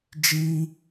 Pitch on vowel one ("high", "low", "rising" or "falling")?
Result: high